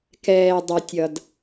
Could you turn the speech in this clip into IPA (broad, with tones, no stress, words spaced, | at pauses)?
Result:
kɛː˧ dˤʌ˧tʲʌ˧d